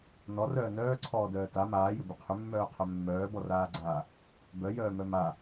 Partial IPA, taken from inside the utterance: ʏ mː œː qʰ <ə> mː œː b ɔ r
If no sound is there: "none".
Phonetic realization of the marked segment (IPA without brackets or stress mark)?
œ